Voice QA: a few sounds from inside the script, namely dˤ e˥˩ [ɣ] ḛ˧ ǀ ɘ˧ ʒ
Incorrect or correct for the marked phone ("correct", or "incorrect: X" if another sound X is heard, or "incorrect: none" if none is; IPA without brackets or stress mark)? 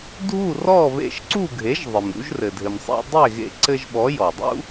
correct